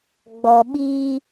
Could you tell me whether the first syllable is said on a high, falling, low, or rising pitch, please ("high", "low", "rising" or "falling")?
low